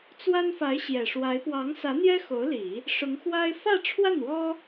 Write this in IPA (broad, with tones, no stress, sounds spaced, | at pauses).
t͡s w a˥ n f a˧˥ ɪ̯ ɕ j ɛ˨˩ ʂ w a˧˥ ɪ̯ p w ɑ˧˥ ŋ s ä˧˥ n̪ j ɛ˥ x o˧˥ ʊ̯ l i˨˩˦ | ʂ ʊ˧˥ ŋ x w a˥ ɪ̯ f ä˥˧ ʈ͡ʂʰ w a˥˩ n w ɔ˥